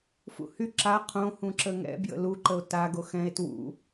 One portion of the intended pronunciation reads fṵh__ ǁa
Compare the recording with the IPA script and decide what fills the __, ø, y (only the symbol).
y